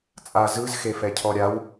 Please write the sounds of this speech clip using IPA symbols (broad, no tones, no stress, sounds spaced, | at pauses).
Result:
t͡sʼ a z ɯ z x e f ɛ cʰ ɔ ɾʲ a w